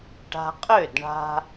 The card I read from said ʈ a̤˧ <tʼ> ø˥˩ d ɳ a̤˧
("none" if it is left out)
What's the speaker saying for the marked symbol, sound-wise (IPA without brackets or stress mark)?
qʼ